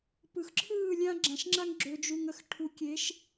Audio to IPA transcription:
p ɯ˨ x ǁʰ ɯː˦˨ lʲ ã˦ ɡ͡ǁ ã˨ ʃ ŋ͡ǁ a˦ ŋ ɡ͡ǁ ø˨ d͡ʒ u˨ ŋ ə˨ x ʈʰ u˨ kʲ e˨˦ ʃ

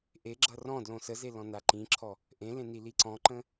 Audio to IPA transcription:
ʔ e ɡ͡ǁ ʌ r ɔ̃ d l õ s ə z e l ɔ̃ n a ǃ ĩ ǁʰ ɔ | ʔ ẽ l ẽ n i l i ǀ ɔ̃ ǃ ə̃

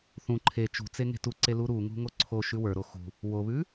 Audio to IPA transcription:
θ ũ ǃʰ e t͡ʃ ṳ t͡s e ŋ e̤ t u ǀ e l u ɾ u ŋ ṳ ŋ o ǀʰ o ʃ ʉ w ə˞ ɾ o x ṳ | w o β ʉ

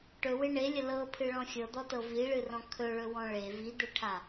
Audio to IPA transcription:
ʈ ɵ w ɪ ɳ e lʲ ə l ɤ pʰ ɨ ɭ ɔ̃ xʲ ɤ d̪ ɔ t ɤ v i ɭ ɨ r ɔ̃ kʰ ɵ ɭ ɵ w ɔ̃ ɭ e v i d̪ e ʈʰ a

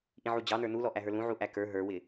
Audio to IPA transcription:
ʔ ĩ ʕ u d͡ʑ ɑ n ə˞ n u l ɔ ʔ æ ɦ ə˞ l ũ ʕ u ʔ æ k ə˞ ɦ ə˞ w ɪ

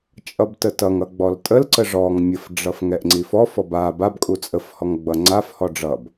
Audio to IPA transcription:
t͡ʃʼ ʌ b t ə t ʌ ŋ ʌ ɡ͡b ɔ l tʼ ə l ǀ ə ʐ ɔ ŋ mʲ ə f ɖ͡ʐ ʌ f ŋ ɛ ʔ ŋ͡ǀ i f ɔ f ɔ b a b a b kʼ u t͡sʼ ə f h ɔ ŋ ɡ͡b ʌ ŋ͡ǀ a f h ɔ ɖ͡ʐ ʌ b

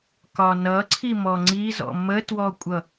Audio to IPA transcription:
k ɒ n ʌ ǀʰ i m ɔ ŋ͡ǀ i z ɔ̰ m ə t w ɔ kʷʼ ʌ

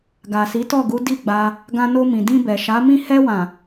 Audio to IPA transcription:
ɡ a˨ s i˨˦ t ɔ˦˨ ɡ u˨˦ d i˦˨ ɡ͡b a˧ | ɡ ã˧ n o˧ m ĩ˨ d ĩ˧ b ɛ˨ ʃ a˨˦ m ĩ˦˨ h ɛ˧ w ã˨

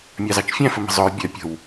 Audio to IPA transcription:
mʲ ɑ z ɑ t͡ʃ fʲ æ̃ f ə m ə̤ zˤ ʊ ɹ bʲ ɜ pʲ ə̤ w

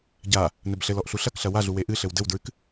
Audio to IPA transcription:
ɟ a | n ɘ b ɬ ɘ l ɔ ʔ ɬ u ɬ ɐ k ɬ ɐ w a ɮ u w e ʔ ɨ ɬ ɘ w d ɘ w d ɹ ɨ k

